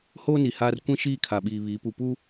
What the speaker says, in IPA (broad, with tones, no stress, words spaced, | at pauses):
hoː˦ni˨haː˦r kʷĩ˦ʃiː˦˨ kʰa˨ɓiː˨ βiː˨˦pu˨pu˦